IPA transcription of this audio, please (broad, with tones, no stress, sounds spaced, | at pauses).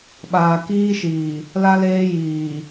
ɓ aː˨ k iː˦ ʃ iː˨ | l a˦ l eː˦ j iː˨